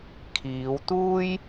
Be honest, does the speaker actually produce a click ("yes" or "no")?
no